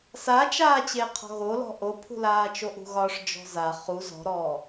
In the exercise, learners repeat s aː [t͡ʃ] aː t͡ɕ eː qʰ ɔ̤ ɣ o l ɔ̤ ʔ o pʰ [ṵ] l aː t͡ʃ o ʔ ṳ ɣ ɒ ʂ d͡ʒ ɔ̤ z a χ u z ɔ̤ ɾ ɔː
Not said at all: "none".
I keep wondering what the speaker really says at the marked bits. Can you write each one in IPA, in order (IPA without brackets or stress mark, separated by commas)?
t͡ʃ, ṳ